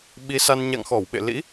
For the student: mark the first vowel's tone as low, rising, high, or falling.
rising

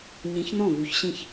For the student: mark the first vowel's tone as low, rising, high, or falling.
rising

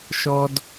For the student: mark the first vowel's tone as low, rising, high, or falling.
high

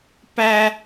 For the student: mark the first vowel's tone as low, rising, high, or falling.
high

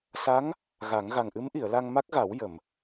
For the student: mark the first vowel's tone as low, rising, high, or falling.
rising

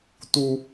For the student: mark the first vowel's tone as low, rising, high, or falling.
high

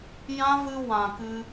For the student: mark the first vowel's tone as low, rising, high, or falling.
high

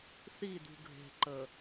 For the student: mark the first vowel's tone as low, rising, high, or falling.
falling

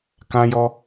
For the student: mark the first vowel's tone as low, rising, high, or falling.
high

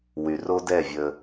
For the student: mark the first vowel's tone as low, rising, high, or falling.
low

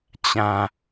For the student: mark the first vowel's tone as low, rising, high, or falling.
low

